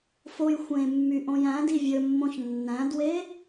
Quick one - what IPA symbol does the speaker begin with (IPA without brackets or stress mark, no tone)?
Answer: f